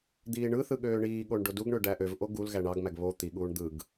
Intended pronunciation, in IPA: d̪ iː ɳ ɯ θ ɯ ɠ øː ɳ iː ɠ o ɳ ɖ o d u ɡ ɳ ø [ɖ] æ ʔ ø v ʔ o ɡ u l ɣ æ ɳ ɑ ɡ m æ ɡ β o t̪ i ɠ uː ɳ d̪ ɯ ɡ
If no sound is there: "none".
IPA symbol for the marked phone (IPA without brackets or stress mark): ɖ